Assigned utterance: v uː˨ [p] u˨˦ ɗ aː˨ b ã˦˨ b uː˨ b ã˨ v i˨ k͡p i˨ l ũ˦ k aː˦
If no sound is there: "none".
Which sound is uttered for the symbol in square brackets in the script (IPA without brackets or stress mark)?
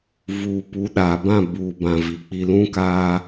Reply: p